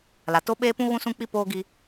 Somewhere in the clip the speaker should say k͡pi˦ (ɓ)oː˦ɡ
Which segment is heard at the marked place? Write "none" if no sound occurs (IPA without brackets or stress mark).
p